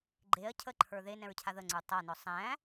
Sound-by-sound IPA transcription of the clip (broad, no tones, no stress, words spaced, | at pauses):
ɡ͡ǃeɐ̯ cʰəǃʰə˞ ðenɛ̃ɹcʰa ðəŋ͡ǀə˞ tˤanɔ sˤæ̃